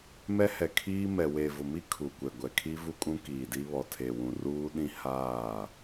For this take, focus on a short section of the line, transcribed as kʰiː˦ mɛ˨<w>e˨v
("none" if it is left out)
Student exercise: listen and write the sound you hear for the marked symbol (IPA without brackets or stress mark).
w